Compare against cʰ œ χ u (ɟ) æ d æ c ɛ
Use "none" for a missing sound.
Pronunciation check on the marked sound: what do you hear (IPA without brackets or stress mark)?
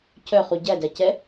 ɟ